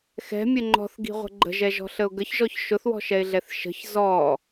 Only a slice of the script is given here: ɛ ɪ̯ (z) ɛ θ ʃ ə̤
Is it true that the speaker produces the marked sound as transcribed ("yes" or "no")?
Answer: no